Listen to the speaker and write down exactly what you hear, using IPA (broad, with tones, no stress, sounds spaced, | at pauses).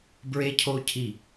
b ɹ e˦˥ cʰ o˦˥ cʰ i˦˨